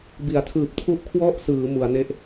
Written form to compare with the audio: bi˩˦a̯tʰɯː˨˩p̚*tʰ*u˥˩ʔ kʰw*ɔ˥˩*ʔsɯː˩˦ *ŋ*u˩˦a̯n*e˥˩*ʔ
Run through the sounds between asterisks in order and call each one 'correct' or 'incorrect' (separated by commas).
correct, correct, incorrect, correct